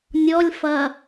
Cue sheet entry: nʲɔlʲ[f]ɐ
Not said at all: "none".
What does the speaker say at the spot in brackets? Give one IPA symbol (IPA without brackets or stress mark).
f